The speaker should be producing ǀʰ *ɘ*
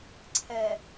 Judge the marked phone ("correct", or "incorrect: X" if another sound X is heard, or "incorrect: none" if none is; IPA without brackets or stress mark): incorrect: ɛ